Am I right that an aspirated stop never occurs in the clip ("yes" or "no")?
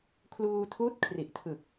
no